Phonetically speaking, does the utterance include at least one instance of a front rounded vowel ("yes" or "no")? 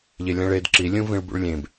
no